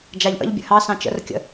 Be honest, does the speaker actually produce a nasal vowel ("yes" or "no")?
yes